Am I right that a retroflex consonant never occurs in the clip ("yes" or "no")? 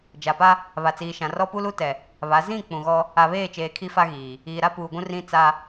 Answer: yes